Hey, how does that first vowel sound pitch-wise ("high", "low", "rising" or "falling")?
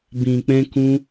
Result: low